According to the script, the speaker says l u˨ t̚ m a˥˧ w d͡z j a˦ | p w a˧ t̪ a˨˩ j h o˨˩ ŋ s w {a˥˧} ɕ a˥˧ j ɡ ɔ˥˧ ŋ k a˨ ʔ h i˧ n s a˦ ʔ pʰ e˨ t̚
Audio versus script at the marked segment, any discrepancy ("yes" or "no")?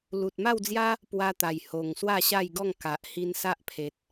no